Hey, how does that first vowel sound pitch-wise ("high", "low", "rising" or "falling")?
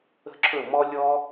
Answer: high